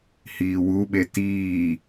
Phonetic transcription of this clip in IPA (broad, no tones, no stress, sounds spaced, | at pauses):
h iː w u ɓ e t iː